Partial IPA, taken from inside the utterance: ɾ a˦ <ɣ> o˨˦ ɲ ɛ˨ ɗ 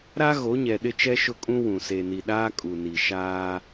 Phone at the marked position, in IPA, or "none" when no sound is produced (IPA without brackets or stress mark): ɣ